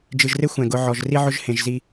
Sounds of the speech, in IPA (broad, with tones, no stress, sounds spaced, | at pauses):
d͡ʒ ɨ˨ ʒ r e˦ xʷ ɛ̃˨ ɡ ʊ˨˦ ʕ ɔ˨ ʒ r i˦ ʕ ʊ˦ ʒ h ẽ˨ ʒ z i˦